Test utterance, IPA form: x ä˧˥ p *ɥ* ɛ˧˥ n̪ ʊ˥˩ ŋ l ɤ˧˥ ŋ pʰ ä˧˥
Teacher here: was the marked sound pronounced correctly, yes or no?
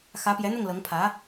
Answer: no